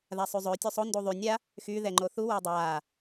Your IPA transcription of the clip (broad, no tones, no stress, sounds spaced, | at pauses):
ð a sˤ y zˤ ø tʲ u sˤ o n d u ðˤ y nʲ a | x y ð ɛ ŋ͡ǃ o θ u w ə˞ dˤ aː